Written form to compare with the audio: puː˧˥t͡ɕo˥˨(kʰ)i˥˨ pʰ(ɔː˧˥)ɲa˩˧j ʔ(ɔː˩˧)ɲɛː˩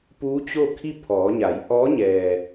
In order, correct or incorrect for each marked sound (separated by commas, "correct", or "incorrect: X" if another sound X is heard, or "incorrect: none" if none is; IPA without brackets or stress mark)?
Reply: correct, incorrect: ɔː˩˧, incorrect: ɔː˧˥